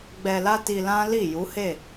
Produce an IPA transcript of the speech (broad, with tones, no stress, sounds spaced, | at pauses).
ɡ͡b ɛ˧ l a˦ t i˧ l ã˦ l i˦˨ j u˨˦ h e˦˨